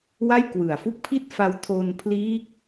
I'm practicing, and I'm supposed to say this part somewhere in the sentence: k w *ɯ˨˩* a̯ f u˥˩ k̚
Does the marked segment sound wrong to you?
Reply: no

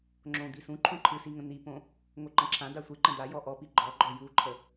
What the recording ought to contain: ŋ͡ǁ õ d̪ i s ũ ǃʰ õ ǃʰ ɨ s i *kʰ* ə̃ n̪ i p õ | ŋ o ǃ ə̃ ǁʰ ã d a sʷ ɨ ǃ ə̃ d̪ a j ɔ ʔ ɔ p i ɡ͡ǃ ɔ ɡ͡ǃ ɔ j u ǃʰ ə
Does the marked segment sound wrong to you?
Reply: yes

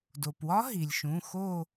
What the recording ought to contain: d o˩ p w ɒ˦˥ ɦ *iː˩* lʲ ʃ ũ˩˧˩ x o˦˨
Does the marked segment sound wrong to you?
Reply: yes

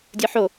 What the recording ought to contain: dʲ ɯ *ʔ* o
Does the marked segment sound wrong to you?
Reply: yes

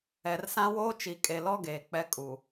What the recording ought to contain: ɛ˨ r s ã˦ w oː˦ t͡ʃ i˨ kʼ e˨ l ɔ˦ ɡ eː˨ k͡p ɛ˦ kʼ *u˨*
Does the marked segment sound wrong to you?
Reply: no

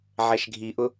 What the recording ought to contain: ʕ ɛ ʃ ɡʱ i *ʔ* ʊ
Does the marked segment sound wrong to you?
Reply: no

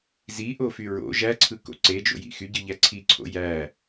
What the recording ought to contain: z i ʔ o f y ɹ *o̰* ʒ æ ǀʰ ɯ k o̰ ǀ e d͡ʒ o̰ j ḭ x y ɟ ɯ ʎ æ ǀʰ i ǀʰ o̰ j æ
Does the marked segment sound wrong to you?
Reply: no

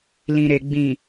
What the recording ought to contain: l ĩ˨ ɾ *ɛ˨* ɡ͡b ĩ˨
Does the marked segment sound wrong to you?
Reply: yes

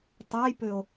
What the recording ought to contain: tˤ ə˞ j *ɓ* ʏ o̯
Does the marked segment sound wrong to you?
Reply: yes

